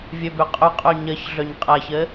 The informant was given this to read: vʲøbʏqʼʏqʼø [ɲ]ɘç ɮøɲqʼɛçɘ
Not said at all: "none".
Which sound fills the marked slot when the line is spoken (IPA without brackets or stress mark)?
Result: ɲ